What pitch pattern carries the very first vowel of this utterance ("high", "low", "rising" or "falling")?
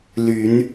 rising